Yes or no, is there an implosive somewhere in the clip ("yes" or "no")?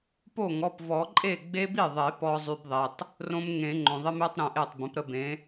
no